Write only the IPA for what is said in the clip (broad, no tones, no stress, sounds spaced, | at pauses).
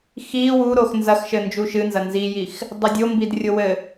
x i w u ɾ o x n z ɐ x ʃ ɘ n d͡ʒ u ʃ ɨ n z ɐ n z i j i x | dˤ ɐ dʲ o m b i d rʲ o w ɘ